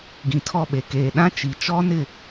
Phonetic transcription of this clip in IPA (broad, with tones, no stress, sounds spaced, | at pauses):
ɡ ĩ˨ tʰ ɔ˦˨ ɓ e˨ k eː˨ ɗ ã˦ t͡ʃ i˨ t͡ʃ ɔ˦ n ɪ˦˨